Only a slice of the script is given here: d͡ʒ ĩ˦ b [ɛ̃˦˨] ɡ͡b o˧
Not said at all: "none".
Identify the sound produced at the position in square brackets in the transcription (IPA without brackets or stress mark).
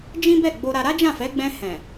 ɛ˦˨